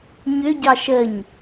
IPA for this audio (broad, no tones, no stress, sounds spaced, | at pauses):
ɲ ʏ ɟ ɑ ʃ ə ɲ